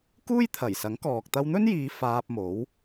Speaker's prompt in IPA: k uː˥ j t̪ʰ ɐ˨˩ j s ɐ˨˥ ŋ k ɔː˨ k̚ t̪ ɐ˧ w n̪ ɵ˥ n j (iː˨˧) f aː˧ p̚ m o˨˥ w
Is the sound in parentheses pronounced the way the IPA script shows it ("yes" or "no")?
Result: yes